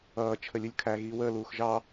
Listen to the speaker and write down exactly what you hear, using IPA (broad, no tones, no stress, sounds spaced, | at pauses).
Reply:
ʌː t͡ʃʰ ə lʲ u lʲ kʰ æ ɣ iː w əː l uː x ʒ ɑ